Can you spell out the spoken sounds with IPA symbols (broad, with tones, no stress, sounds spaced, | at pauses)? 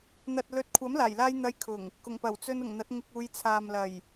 n̪ ɐ˨ t̚ l ɵ˨ t̚ kʷʰ ɐ˨˥ m l aː˨˩ j l aː˧ j n̪ ɐ˧ j kʰ ʊ˨˩ ŋ | k ʊ˨˩ ŋ p ɐ˨˩ w t͡s ɵ˧ n ʊ˨˩ ŋ n̪ ɐ˨˥ t̚ ŋ ɪ˧ k̚ uː˨˧ j t͡sʰ aː˨ m l ɐ˨˩ j